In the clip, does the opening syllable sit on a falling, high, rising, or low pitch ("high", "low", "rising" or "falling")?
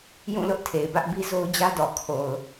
falling